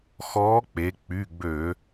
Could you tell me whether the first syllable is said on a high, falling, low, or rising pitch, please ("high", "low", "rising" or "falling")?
rising